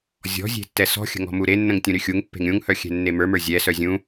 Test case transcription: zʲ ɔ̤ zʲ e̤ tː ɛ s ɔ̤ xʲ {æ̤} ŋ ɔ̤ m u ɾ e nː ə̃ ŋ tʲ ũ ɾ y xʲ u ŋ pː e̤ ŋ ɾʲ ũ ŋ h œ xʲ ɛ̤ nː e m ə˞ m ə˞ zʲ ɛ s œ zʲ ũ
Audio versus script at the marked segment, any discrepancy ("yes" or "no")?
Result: yes